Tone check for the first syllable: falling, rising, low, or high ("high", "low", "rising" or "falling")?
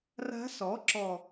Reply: rising